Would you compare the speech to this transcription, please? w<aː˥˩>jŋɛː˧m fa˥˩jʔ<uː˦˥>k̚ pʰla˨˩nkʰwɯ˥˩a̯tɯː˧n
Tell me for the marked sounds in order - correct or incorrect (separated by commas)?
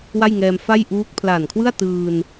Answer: incorrect, correct